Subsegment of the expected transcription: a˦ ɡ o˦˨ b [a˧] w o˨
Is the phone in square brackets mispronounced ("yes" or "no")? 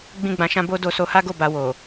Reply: no